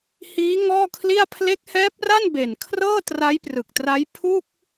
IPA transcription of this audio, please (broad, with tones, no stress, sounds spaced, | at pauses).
h iː˦˥ ŋ ɔː˥˩ kʰ l i˥˩ a̯ pʰ l e˦˥ k̚ h ɛː˦˥ p̚ r a˥˩ n b e˨˩ n kʰ r ɤː˥˩ t r a˦˥ j p r ɯ˨˩ k̚ t r a˦˥ j pʰ u˥˩ k̚